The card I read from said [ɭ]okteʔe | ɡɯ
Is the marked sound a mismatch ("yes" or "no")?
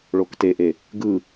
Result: no